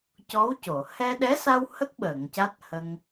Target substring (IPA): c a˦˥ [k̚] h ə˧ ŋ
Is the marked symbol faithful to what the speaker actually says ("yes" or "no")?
no